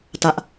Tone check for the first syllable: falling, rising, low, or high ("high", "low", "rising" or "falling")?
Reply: high